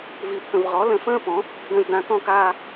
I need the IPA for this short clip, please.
v i˨ pʰ ə̃˨ v ʁ ɔ˩˥ l ə̃˨ f ə̃ː˥˧ p ɔ̃˩˥ | d ə̃˨ z d ã˨ k ɔ̃˥˧ k aː˥˧

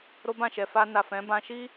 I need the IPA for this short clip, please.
ɾ o˦ b ã˦˨ ʃ ɛ˨ f a˧ n a˨ f ɛ̃˨˦ b ã˧ ʃ i˦

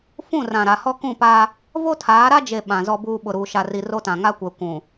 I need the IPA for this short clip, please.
f ũ˦˨ r ã˨ ɾ a˨ h ɔ˦ k ũ˦˨ p a˦ | v o˦ tʰ aː˨˦ ɾ a˦ d͡ʒ e˨ ɓ ã˨ z ɔ˦ b uː˦ ɓ ʊ˨ ɾ uː˨ ʃ a˨ r i˨ r o˦ t ã˨ ŋ a˦ kʷ ɛ˨ kʷ ũ˨

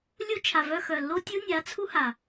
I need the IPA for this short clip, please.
lʲ u˦ t͡ʃʰ a˨ v œ˧ x œ˨ lː o˦ tʲ u˦ nʲ a˨˦ t͡sʰ u˦ h a˨

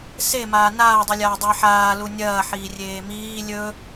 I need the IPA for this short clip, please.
s e m aː n aː dˤ u lʲ aː dˤ ɨ ħ aː l u nʲ ɐː ħ iː rʲ eː m iː lʲ ɵ

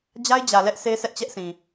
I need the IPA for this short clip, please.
d͡ʑ a˦ ɪ̯ d͡ʑ ä˨ l ɛ˦ ʔ s e˦ s ɛ˦ ʔ t͡ɕ ɛ˦ ʔ s ĩ˨

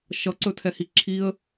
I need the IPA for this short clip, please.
ʃ ʌ ǀ ɵ tʰ ɛ h i ǁʰ i ə̯

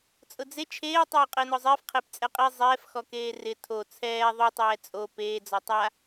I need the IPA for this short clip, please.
t͡sʼ ʊ d͡z e t͡ʃʰ eː tˤ oː qʼ ɪː n ɔ zˤ ɪː f qʰ e p t͡sʼ ɛ qʼ i zˤ ɛː f x ɔ k eː r ɪ tʰ o t͡sʰ ɛː ðˤ u tˤ ɛː t͡sʼ o p eː d͡z ɔ tˤ a

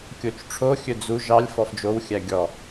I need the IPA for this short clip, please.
kʲ o t͡ʃ ʈ͡ʂʰ o xʲ ɵ d͡z u ʒ ɑ lʲ f ɔ f d͡ʒ o w xʲ æ ɡʲ ɔ

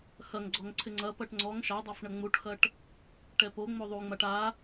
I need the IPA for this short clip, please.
x ɐ ŋ ɡ͡ǀ ɔ ŋ ǀʰ ɪ ŋ͡ǀ ɐ p ɐ ʈ ŋ͡ǀ ɔ ŋ ʃ a dˤ a f ɳ ɐ ŋ͡m u ʈ x ɐ ʈ | ʈ ɛ p o ŋ͡m o ðˤ u ŋ͡m a ʈ a

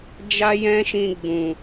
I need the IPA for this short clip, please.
d͡ʒ a˦ j ɛ̃˦ ʃ ĩ˧ ɡ͡b ũ˨

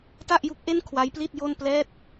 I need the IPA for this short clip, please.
t a˥˩ ʔ j u˦˥ k̚ ʔ e˥˩ n kʰ w a˦˥ j p l i˥˩ t̚ j o˥˩ n p l ɛː˥˩ t̚

